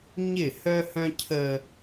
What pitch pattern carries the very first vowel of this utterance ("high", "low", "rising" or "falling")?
falling